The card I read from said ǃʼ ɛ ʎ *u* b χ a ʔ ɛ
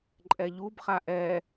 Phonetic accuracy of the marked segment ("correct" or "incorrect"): correct